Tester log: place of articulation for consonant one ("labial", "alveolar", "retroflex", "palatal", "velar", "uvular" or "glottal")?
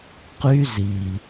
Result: uvular